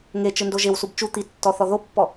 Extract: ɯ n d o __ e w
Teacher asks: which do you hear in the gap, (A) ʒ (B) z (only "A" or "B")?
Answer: A